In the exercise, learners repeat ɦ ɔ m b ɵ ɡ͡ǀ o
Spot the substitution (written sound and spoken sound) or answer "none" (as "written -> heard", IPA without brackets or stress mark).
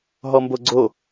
ɵ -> o